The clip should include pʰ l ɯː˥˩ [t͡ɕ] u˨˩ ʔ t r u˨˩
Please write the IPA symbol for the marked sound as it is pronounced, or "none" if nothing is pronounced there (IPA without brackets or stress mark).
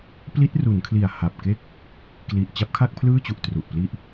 t͡ɕ